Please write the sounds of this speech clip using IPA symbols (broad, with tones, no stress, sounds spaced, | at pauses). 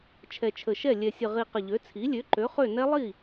t͡ʃʰ ɛ˨˩ t͡ʃʰ ə˨˩ ʃ ɛ˥˩ lʲ ɛ˨˩ sʲ ə˨˩ ʁ i˨˩ q ə˨˩ ʎ ø˩˥ t͡sʰ i˩˥ lʲ ø˩˥ ǃ ø˩˥ χ ø˥˩ n ɛ˦˥ lˠ i˥˩